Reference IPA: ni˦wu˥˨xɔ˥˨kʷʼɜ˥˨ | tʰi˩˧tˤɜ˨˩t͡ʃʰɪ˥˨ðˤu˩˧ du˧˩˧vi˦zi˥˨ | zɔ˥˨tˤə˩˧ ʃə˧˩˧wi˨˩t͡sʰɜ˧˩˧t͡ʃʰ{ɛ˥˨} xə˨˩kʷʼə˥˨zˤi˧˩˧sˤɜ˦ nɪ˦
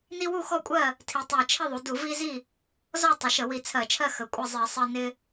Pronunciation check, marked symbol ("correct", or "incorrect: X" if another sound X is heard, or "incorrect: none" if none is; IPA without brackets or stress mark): incorrect: ɜ˥˨